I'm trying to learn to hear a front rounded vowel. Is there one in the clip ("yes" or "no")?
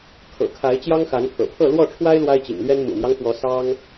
no